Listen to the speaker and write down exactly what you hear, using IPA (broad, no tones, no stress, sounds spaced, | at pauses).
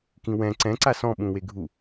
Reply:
k ĩ w ɛ̃ ǀ ɛ̃ ǀ a s ɔ̃ ɓ ũ w e ɡʱ u